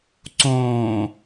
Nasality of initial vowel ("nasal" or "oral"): nasal